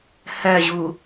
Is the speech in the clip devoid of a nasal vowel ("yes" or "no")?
yes